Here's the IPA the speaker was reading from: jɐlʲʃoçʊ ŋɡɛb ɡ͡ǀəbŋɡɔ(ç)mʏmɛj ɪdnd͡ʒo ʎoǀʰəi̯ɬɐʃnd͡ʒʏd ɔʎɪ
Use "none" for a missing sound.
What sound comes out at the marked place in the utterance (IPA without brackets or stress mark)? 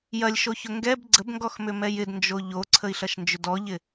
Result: x